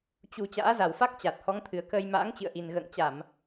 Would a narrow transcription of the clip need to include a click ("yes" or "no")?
no